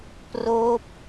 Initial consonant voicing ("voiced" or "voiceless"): voiceless